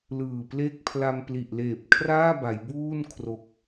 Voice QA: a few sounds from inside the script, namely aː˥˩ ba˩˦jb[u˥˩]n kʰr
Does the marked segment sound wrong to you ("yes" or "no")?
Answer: yes